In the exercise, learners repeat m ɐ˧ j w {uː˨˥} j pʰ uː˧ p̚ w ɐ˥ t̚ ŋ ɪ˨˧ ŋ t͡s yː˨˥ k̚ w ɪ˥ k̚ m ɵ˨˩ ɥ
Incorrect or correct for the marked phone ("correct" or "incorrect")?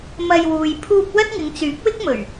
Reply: incorrect